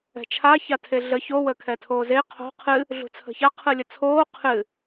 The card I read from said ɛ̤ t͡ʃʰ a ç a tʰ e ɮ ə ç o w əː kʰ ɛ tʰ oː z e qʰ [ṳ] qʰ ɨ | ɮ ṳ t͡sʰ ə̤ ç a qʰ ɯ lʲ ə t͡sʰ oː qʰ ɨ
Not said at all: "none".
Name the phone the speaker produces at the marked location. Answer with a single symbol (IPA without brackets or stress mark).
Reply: o̤